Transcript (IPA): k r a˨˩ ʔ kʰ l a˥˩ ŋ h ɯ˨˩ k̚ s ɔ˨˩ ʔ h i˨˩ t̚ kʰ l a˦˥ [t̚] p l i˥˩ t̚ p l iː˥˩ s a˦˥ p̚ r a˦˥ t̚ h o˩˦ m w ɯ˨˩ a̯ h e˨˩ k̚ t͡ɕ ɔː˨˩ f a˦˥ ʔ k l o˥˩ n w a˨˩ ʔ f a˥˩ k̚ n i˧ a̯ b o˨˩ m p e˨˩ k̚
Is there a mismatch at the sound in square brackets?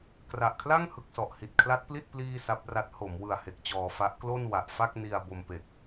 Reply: no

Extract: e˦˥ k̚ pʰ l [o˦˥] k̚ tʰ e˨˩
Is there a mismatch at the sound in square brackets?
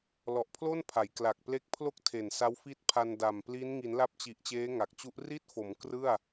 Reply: yes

